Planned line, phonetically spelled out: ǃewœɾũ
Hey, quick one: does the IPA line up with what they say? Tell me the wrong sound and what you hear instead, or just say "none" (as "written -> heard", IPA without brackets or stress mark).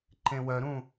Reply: e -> ẽ